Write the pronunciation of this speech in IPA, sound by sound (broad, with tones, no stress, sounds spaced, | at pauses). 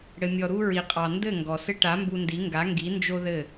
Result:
ɽ ɘ˧ mʲ ɔ˧ ɾ u˧ ɹ i˨ qʼ ɑ˨ n d ɘ˦˨ ŋ ɡ ɔ˨ s ɘ˦ ʈ a˨˦ m b u˧ n d i˨˦ ŋ ɡ a˨˦ ŋ ɡ i˨˦ n d͡ʒ o˦ ð ɘ˦˨